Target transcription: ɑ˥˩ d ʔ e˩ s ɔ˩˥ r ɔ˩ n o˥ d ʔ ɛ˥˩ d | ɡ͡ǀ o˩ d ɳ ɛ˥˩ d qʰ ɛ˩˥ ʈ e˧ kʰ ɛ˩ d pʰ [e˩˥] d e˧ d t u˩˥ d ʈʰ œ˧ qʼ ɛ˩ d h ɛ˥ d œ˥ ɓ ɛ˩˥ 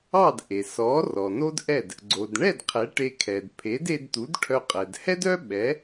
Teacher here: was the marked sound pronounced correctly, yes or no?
yes